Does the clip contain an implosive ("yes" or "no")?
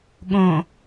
yes